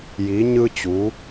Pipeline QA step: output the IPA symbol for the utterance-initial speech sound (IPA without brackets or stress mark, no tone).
j